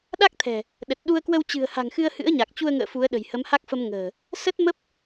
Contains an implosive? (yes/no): yes